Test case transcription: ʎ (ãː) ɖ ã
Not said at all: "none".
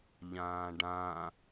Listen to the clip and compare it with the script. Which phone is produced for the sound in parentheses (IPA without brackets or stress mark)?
ãː